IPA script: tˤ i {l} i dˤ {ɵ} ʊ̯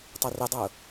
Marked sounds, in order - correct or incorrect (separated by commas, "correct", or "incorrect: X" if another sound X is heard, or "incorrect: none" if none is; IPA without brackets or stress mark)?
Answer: incorrect: r, correct